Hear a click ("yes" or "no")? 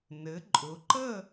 yes